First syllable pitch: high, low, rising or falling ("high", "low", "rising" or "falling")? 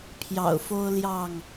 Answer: low